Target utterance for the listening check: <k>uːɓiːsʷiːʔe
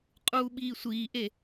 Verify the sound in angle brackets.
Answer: incorrect: qʼ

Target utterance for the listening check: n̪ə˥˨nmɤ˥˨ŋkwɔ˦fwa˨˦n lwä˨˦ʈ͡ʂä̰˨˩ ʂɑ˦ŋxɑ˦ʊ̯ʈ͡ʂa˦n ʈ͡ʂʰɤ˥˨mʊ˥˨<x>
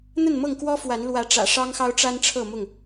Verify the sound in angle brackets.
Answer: incorrect: ŋ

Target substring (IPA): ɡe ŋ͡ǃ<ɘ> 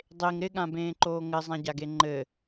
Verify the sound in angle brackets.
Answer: correct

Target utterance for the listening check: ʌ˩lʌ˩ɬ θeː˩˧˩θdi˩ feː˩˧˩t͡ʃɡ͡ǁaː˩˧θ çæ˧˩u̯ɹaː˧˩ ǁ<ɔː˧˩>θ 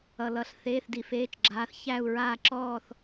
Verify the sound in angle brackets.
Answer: correct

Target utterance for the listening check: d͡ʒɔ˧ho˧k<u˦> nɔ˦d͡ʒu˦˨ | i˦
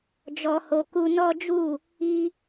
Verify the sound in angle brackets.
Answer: correct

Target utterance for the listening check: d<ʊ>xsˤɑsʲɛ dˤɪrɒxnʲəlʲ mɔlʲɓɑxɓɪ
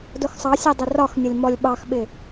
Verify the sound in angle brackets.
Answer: correct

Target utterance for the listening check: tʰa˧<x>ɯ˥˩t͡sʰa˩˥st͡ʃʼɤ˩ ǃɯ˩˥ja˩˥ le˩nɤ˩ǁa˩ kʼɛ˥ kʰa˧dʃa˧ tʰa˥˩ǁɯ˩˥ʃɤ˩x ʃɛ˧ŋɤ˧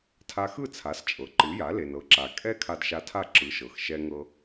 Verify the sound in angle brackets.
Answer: correct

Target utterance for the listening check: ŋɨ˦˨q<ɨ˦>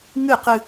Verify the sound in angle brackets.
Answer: correct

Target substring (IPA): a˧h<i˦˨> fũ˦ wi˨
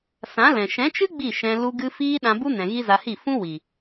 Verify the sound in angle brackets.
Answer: correct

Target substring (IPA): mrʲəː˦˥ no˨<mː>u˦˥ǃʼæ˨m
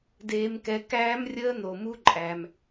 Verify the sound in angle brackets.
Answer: incorrect: m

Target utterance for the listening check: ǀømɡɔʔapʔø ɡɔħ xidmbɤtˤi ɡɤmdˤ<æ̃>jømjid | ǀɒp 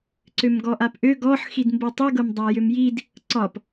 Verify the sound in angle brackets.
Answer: incorrect: æ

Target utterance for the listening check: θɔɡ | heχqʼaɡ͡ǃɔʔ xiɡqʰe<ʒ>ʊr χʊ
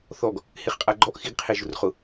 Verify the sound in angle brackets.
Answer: correct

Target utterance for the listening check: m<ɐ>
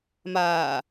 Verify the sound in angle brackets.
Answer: incorrect: a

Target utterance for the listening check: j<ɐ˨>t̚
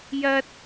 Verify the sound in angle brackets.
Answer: incorrect: ɐ˥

